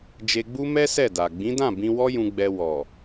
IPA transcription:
d͡ʒ e˧ ɡ͡b u˦ m ɛ˦ s ɛ˦˨ d a˨ ɡ͡b ĩ˨˦ d ã˦˨ b ĩ˧ w ɔ˦ j ũ˧ ɡ͡b ɛ˧ w ɔ˨

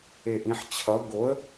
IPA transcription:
e ʔ ĩ ħ t͡ɕʰ ʌ ɡ o ə̯

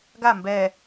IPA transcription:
ɡ a m b ɛ

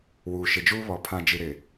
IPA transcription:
w uː˨ ʃ ɪ˨ d͡ʒ uː˦ β ɔ˨ pʰ ã˨ d͡ʒ i˨ ɾ ɪ˨

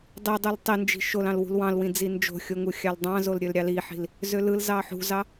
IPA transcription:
dˤ i dˤ u l tˤ i n d͡ʒ i̤ ʃ o l ɑ̃ l w ṳ l w ɑ̃ l w ĩ d͡z i n d͡ʒ o̤ xʲ o ŋ u xʲ ɑ l dˤ ɑ̃ z o l ɾʲ ø l ɾʲ ɑ l i ħ i̤ l | z ø l ɯ l z ɑ ħ ṳ z ɑ

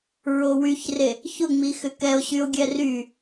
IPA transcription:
ɹ o w y ç r e | ç ʊ ŋ͡m i x ʏ k ɛ o̯ ɕ y o̯ ɡʲ ɛ r y

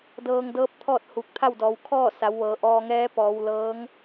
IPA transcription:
d ɤː˧ ŋ d ɤː˧˥ p̚ t̪ʰ ɔː˥˨ t̚ h u˧˩ k̚ t̪ʰ a˥˨ w d ɔː˩˧ w kʰ ɔː˥˨ s a˩˧ w ʋ ɤː˩˧ ʔ ɔː˧ ŋ ɛː˧˥ p ɔː˩˧ w l ɤː˧˥ ŋ

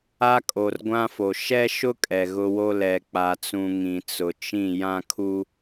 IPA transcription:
a˦ kʼ o˨ r ɡʷ ã˦ f o˨ ʃ ɛ˦ ʃ ʊ˦ kʼ ɛ˨ ɣ ʊ˦ w o˦ l ɛ˨ k͡p a˨ t͡s ũ˨ ŋ ĩ˨ t͡s ʊ˨ t͡ʃ ĩ˦˨ j ã˦ kʰ u˦

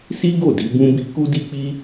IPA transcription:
s i˦ ɡ o˦˨ d i˨˦ b ũ˦ b i˦ k u˦ d i˦ k͡p i˦

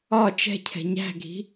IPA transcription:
ɒ t͡ʃ ɛ̤ cʰ ɛ̤ ɲ æ̤ ɡʱ i̤

